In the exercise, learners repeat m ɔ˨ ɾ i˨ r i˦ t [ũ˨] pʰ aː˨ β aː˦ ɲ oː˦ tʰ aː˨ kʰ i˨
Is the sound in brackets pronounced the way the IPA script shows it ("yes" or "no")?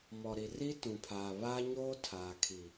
yes